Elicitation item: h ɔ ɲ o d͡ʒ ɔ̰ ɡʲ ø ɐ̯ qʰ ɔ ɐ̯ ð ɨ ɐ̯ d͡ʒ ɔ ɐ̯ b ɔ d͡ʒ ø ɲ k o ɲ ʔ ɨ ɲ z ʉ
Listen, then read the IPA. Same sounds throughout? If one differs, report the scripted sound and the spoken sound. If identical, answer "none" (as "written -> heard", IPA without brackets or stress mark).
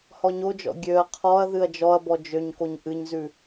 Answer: none